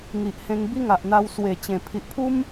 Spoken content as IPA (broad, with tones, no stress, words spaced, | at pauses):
ŋi˨ʔhẽ˧ŋ bi˦ŋa˨ʔn̪a˧w swe˨˩t͡ɕẽ˨˩ pʰi˨ʔpʰu˦m